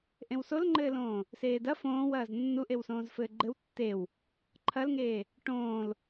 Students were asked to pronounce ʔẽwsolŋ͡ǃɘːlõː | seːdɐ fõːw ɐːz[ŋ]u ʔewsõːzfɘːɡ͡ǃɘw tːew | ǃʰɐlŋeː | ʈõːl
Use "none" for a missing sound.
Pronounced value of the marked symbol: nː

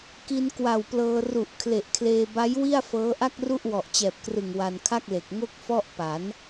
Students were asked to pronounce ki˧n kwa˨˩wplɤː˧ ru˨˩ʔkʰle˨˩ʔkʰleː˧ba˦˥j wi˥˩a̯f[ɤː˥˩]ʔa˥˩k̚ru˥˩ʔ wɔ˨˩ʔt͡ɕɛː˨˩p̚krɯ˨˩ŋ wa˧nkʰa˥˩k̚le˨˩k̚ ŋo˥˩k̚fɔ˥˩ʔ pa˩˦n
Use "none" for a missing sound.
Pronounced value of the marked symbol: ɤː˦˥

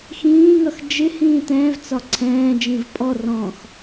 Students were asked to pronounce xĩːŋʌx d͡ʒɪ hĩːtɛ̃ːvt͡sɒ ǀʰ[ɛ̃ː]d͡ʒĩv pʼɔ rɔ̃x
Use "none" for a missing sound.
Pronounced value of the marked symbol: ɛ̃ː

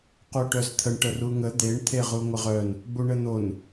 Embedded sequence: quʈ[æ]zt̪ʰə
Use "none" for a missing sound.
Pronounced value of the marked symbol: œ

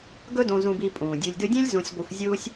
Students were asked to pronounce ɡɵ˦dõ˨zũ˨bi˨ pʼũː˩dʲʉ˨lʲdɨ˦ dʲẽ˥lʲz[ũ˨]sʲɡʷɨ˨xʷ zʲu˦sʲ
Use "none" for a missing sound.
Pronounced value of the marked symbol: ũ˨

